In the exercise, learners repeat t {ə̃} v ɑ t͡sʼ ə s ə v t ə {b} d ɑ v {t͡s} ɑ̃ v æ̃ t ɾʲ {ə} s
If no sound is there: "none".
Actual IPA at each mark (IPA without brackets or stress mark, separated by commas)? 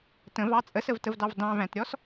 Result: ə̃, v, d, ɔ